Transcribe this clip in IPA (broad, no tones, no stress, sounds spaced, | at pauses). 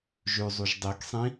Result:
ʒ ʉ zˤ u ʒ dˤ i k sˤ ĩ